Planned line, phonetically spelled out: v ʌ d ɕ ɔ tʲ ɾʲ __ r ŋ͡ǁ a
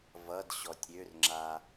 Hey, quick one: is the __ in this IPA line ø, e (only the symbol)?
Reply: ø